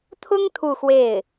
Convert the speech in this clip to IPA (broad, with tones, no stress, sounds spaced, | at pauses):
t̪ʰ ʊ˥ ŋ t̪ʰ u˥˧ x w e˥˩ ɪ̯